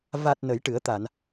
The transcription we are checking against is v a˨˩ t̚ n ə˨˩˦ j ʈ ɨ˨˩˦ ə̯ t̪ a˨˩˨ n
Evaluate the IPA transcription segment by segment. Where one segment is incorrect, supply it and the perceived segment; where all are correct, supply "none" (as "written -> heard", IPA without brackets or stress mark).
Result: none